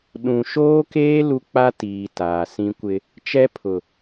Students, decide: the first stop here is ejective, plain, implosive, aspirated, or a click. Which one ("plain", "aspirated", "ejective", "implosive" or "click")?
implosive